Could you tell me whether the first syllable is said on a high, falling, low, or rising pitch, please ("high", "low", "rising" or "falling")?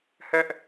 high